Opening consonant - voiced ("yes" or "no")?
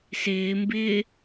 no